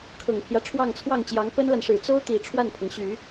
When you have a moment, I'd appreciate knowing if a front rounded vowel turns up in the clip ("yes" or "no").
yes